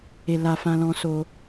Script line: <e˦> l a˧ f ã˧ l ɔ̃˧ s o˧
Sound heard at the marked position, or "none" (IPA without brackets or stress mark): e˧